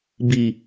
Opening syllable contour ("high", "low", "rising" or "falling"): low